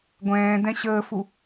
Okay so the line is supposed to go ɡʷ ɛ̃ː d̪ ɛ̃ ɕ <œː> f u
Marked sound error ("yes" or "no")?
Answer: yes